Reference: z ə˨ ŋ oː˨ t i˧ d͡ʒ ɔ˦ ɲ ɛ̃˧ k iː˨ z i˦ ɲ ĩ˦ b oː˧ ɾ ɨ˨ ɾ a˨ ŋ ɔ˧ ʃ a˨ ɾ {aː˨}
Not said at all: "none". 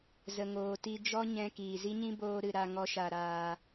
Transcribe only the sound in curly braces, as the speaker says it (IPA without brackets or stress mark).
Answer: aː˨